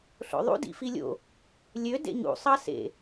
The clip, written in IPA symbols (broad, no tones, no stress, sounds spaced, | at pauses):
ɬ o̰ ðˤ ṵ d ḭ f i lʲ o̰ | lʲ ø d ḛ ɲ ṵ sˤ ɑ s ḛ